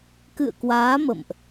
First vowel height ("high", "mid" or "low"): high